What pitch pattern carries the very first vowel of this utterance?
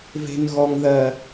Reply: high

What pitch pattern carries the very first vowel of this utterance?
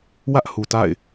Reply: high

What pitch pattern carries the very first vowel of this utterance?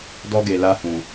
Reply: high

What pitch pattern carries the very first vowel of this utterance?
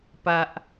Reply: high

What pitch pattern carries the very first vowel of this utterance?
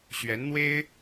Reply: rising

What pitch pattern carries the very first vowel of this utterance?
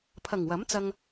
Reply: low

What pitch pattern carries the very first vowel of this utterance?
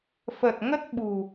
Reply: low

